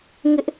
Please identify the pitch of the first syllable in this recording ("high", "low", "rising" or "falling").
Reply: high